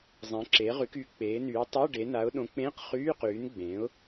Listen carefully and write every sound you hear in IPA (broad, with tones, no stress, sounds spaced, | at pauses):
zˤ ẽ˨˥ ǁ eː˨˥ ʁ y˨˥ k yː˨˥ k͡p eː˨˥ n yː˨˥ tˤ o˧˥˧ ɖ e˨˥ n a˨˥ ʊ̯ ɗ õ˨˥ k͡p ẽː˧˥˧ q χ yː˧˥˧ q yː˨˥ n ɡ͡b ẽː˨˥ ʊ̯